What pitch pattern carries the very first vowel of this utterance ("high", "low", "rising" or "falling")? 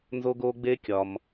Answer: high